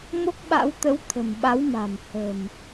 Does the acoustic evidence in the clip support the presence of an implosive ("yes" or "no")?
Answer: yes